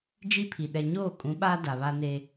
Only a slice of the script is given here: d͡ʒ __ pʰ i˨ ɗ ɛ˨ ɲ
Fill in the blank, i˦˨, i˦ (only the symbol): i˦